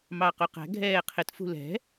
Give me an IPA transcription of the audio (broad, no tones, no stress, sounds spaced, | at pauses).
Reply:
m ɑ q u q æ̤ ɡʱ ɛː qʰ ɪ t f ṳ l ɛ̤